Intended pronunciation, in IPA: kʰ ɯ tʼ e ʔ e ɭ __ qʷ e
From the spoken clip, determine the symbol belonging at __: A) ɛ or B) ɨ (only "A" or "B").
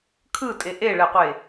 A